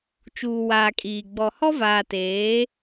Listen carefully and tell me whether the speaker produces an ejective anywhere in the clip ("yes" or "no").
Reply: yes